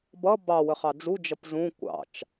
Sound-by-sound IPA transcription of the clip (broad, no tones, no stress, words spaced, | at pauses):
bʌ bɑwə χɑd͡zud͡ʒʌp zũ kʷɑ̰t͡ʃ